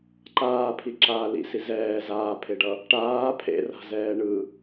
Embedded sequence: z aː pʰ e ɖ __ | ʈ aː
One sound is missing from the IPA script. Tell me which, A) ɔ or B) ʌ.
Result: B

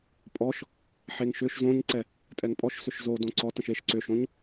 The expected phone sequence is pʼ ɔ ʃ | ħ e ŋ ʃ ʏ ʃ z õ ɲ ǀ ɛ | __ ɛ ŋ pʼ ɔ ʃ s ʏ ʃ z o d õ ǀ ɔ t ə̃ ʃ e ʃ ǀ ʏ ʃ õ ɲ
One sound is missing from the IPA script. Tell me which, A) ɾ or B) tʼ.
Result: B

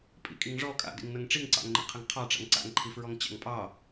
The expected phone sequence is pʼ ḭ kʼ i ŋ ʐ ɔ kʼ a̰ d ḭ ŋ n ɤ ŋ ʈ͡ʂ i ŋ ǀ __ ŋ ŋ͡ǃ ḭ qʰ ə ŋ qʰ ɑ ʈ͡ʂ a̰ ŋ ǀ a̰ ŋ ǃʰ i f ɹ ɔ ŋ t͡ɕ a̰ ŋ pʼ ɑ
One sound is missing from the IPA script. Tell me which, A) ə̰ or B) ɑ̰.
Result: B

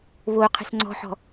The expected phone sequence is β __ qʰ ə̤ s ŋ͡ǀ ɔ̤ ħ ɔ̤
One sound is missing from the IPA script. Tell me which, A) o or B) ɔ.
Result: A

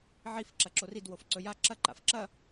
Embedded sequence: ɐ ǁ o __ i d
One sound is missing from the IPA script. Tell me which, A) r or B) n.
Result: A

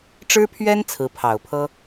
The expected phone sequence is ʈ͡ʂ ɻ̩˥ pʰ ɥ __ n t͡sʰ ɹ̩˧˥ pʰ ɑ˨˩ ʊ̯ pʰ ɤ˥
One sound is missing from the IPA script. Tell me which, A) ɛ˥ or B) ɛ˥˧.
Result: A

